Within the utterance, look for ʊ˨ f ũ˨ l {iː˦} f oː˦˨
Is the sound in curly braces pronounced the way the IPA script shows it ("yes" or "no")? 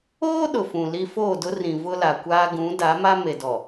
no